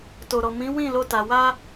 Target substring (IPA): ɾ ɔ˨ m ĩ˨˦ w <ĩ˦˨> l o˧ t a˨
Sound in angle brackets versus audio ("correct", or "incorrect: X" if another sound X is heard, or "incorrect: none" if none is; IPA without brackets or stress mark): correct